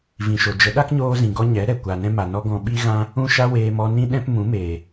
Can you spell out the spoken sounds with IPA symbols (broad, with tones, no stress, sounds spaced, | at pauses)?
v ĩ˨ ʃ o˨ d͡ʒ ə˨˦ ɗ a˦ k ɲ oː˧ z ĩ˨ ɡ ɔ˧ ɲ ɛ˨˦ ɾ ɛ˨ kʷ a˨ n ɛ̃˧ m a˨ n ɔ˧ ɡ ɔ̃˧ ɓ i˦ ɣ ã˦ | ũ˦˨ ʃ a˦ w eː˧ m ɔ˧ n ĩ˦ ɗ ɛ̃˦ p m ũ˨˦ m eː˨